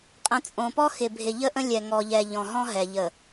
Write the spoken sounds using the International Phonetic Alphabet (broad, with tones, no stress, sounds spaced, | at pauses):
qʼ ə̃˨ t͡sʼ õ˨ p ɔ˦ x ɪ˨ bʱ ɪ˨ ʎ ə˦ ʔ ə̃˦ lʲ ɛ˨ ŋ ɔ˨ ʎ ɛ˨ ʎ ɔ̃˨ ɦ ɔ̃˦ ɦ ɛ˨ ʎ ə˨